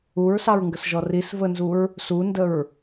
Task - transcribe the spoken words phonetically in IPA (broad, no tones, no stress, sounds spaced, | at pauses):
u ɹ s ɑ ɹ ŋ ɡ ə s ʒ ɔ r i s v ə n z u ɹ | s u n d ə ɹ